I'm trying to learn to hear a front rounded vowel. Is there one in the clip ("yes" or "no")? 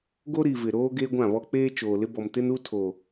no